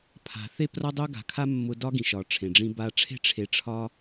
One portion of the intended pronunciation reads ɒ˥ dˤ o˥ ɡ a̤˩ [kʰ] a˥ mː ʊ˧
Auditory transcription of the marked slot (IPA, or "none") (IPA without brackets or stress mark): kʰ